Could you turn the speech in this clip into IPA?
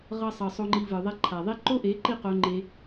ʁʌ˧sˤʌ˨ sˤo˧ŋ͡ǃi˧vɯ˨ðˤɛ˦ ǃʰa˨ðˤi˦ ǃo˦ʔe˨˦ǃi˦˨ qo˦ŋ͡ǃe˦

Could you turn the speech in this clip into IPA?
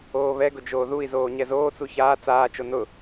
oːβɛɡʊ d͡ʒoːðui̯zoː ɲɛzoːt͡su çaː t͡saːt͡ʃo nʊ

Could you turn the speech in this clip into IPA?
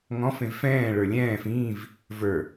ŋɔ̃ fẽvfɛ̃ː ɭə˞lʲɛ̃ːf ĩːv | və˞

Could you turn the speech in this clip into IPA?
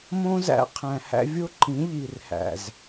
mõ˦zæ̰˧ qʰæ̃˨hæ̰˧ vʲo˦ǃĩ˨˦ ʎi˨rhæ̰˨z

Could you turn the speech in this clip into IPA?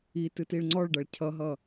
itɨ tiɭŋ͡ǀɔɭɖʌɭ cʰʌɦʌ

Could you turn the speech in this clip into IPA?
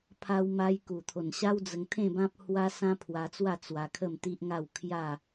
pʰa˧wma˧j ku˨˩t̪ʰo˨˩nɕa˦w d͡zə˧ŋt̪ʰẽ˥˧bã˦p̚hwa˦ sã˦pʰwa˧t͡swa˥˧ t͡swa˧kʰə˥˧mt̪i˦ʔŋa˥˧w kʰja˥˧

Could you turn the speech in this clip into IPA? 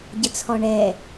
ɟət͡sʰɔɳɛ

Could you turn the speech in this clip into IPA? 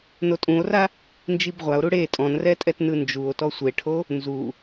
notʼũo̯ra | nd͡ʒibʁʷao̯ɾu ɽe tʼɔ̃nrɛtʼɛt nɯnd͡ʒuo̯ tɔsʷeʈʰo | nzu

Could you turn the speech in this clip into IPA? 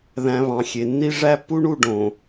ðæ̃˨ βɑ̃˨xʲe˨ nːi˦ʐæ˦pːu˦ɳu˦˨ ɖõ˨

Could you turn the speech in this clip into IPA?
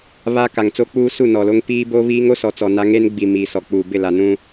βa˦ ka˨ŋt͡so˦k͡puː˦su˦˨ nɔ˨lo˦ŋ piː˦ bo˦βiː˦ŋ o˦sɔ˨t͡sɔ˨ na˦ ŋe˦nɡ͡bi˨ miː˨ sɔ˨k͡puː˨bɪ˦˨ la˨nũ˦

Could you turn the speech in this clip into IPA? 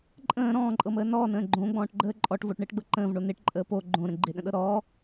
ǃʼə̃ː ɾɔ̃ːǃʼɤməː nɔːnə̃ː ɡ͡ǃõɡ͡bɔ̃ːʈɡ͡ǃəː ǃʼɔʈvoʈɳɪːʈɡ͡bɤ ǃə̃ːvɳo nɪʈǃʼəː po ɡ͡ǃõɾə̃ ɡ͡ǃɪɗə̃ɗɤ ɾɔː

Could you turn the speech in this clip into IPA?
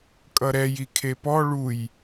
kʼʌɾɛj ikʰepɔ ɭuj

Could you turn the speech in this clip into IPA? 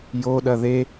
joɗɐ ðe

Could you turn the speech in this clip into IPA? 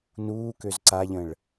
nuːkøz ǀaʎə̃ɭ

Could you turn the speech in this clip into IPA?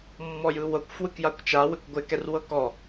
mːɔjɯwɤkʷ fwɯkjakʷt͡ʃa wɪkʷɡʷɪ kɛrwɤkɔ

